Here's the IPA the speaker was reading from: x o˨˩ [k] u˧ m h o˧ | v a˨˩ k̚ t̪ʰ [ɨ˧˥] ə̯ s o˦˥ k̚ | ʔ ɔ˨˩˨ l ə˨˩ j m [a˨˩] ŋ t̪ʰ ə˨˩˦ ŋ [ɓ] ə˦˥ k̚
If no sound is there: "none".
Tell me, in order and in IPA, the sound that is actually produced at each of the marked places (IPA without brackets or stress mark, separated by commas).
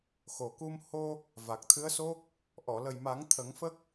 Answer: k, ɨ˧˥, a˨˩˦, f